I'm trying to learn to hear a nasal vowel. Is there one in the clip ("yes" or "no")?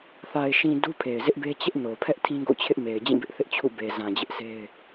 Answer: yes